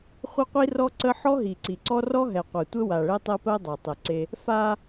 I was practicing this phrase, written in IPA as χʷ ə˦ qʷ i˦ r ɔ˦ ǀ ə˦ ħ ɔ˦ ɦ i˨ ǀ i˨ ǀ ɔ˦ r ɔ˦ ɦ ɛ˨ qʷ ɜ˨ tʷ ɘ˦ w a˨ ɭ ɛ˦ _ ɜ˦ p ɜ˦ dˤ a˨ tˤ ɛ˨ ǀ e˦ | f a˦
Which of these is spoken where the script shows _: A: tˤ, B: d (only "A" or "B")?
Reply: A